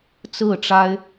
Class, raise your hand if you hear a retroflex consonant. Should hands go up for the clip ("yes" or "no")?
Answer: yes